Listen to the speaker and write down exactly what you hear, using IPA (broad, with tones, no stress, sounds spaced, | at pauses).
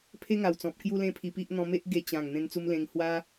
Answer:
pʰ e˦ ŋ a˨˩ w t͡s ɔ̃˨ p̚ k j u˦ l ẽ˦ pʰ i˧ p i˦ ʔ n̪ ɔ̃˧ m e˦ ʔ ɡ e˧ t͡ɕ ã˨˩ ŋ n̪ ẽ˧ n t͡s u˧ m l ẽ˧ ŋ h w a˦